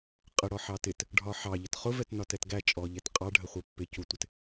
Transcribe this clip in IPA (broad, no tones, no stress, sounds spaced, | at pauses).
qʼ ə ɽ ɔ ħ ɑ t ɪ t | ɖʱ ɒ ħ ɑ ʎ ə t χ ʊ v ɛ t n ɒ t ɛ t ɡ æ t͡ʃʼ ɔ ʎ ɛ t qʼ ɑ ɖʱ ə χʷ ɜ pː ɪ c u tʷ ɪ t